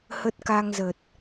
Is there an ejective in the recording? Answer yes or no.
no